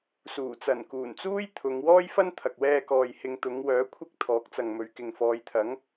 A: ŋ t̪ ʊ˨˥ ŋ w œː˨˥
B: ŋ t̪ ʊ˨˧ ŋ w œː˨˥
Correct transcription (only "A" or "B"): B